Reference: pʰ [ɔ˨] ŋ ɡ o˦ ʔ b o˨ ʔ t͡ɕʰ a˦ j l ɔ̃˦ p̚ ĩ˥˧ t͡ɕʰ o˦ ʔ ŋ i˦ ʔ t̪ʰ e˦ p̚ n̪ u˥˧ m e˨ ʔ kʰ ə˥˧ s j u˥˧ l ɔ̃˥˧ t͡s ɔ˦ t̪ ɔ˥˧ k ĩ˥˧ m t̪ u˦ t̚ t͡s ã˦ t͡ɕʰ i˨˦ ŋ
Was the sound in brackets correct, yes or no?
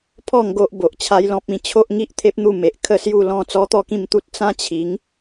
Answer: no